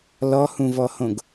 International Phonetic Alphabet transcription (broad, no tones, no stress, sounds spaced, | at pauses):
l ɔ h ũ v ɔ h õ ɡ